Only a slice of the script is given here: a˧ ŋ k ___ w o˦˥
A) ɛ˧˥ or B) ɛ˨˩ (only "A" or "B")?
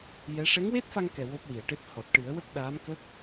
B